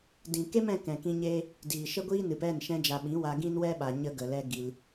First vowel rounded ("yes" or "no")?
no